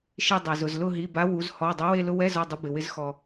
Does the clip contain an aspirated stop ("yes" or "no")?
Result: no